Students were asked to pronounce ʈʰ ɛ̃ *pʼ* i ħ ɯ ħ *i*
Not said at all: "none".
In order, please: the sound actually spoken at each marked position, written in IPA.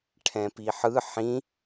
p, ĩ

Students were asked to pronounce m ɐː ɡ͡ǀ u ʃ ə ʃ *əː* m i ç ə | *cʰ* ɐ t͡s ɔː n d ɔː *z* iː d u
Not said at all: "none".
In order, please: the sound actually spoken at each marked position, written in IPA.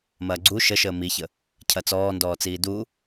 əː, cʰ, t͡s

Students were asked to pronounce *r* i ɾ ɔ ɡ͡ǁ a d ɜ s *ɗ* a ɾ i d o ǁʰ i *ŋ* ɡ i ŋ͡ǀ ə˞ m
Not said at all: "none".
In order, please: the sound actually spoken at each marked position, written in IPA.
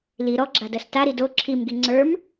l, t, m

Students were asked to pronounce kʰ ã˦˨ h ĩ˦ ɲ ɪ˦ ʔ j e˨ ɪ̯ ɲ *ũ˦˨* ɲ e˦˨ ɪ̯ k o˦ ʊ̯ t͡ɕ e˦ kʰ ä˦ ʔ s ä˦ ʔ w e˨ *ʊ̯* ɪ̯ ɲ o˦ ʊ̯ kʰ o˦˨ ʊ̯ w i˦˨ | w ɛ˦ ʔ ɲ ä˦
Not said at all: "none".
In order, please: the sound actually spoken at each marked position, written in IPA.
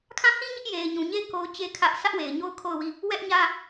ũ˨, none

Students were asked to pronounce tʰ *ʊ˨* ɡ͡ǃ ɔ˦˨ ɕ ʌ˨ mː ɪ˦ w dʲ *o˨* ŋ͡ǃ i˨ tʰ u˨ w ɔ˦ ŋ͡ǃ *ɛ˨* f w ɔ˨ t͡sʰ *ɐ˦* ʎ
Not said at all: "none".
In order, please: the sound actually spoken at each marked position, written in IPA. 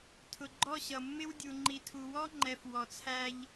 ʊ˨, u˨, ɛ˨, æ˦

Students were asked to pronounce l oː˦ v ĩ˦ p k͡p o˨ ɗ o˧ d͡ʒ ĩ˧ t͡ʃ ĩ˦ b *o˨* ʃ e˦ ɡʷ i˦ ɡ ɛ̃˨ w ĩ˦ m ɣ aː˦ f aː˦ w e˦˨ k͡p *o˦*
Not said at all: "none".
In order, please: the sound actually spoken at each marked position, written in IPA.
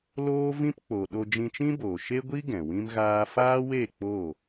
oː˨, o˦˨

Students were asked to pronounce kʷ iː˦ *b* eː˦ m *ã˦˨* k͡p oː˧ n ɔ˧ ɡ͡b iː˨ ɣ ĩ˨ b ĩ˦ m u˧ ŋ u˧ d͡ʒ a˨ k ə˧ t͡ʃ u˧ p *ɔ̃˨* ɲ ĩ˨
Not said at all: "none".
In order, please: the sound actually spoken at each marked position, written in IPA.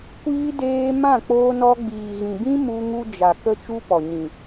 d, ã˦˨, ɔ˨

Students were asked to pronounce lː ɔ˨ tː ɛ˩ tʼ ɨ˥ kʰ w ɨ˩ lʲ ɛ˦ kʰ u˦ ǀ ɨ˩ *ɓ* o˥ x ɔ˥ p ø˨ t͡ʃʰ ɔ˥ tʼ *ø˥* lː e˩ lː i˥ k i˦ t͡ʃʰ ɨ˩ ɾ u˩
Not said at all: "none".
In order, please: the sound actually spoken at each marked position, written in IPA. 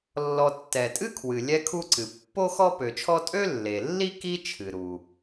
pː, ø˥

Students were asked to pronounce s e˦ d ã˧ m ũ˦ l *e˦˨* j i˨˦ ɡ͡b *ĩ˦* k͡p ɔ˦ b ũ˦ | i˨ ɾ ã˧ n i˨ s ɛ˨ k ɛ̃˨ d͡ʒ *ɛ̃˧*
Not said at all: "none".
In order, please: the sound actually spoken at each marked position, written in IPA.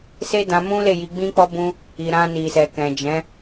e˦˨, ĩ˦, ɛ̃˨˦

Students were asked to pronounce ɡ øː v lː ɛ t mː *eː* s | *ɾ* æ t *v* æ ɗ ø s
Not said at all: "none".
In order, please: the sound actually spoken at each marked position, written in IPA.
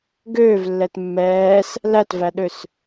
ɛː, l, v

